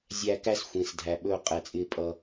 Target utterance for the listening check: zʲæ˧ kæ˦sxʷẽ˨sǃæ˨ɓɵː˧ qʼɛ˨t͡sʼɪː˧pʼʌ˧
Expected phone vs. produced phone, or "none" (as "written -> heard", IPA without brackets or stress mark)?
ǃ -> dʱ